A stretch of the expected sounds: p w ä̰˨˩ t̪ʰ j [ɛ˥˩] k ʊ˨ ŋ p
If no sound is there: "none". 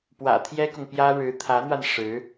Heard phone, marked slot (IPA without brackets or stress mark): ɛ˥